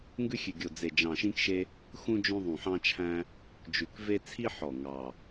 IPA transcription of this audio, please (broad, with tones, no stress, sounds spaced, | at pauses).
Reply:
ŋ ɡ ʉ˦ xʲ ʉ˨˩ ɡʲ o˨˩ d͡z e˨˩ d͡ʒ ɑ̃˨˩ ʃ ĩ˦ k ʃ e˦ | x ũ˦ d͡ʒ õ˦ ðˤ ũ˨˩ ħ ɑ̃˦ t͡ʃʰ æ̃˦ | d͡ʒ ʉ˨˩ k v e˦ t͡sʰ i˦ ħ ɔ˨˩ ŋ ɑ˨˩